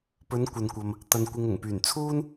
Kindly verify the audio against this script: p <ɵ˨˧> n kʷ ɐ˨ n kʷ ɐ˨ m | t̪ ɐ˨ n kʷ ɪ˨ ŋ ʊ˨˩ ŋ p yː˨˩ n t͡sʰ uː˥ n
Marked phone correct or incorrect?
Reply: correct